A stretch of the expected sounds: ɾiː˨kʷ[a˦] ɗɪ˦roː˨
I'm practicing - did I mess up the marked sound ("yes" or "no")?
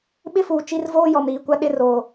no